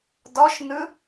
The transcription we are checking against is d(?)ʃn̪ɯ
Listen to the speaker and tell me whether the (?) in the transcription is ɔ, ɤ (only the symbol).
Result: ɔ